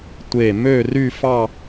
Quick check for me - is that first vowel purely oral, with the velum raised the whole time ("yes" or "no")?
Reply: yes